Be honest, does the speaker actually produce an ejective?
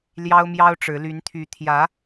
no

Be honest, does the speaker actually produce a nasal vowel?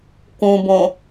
yes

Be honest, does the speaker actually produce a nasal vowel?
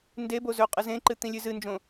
yes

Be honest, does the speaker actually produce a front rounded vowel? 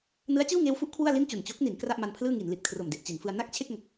no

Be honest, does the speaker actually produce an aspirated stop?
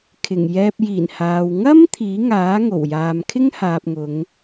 yes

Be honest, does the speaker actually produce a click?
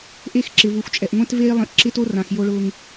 yes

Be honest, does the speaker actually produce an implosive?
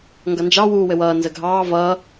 no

